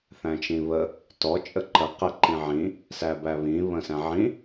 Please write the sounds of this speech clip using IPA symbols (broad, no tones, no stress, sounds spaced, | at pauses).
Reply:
θ æ̃ t͡ʃ ĩ β ə | t ɔ t͡ʃʼ ə ǃ ə q ə ǃ ĩ ʕ ĩ | s æ b æ β ĩ β ə̃ s æ̃ ʕ ĩ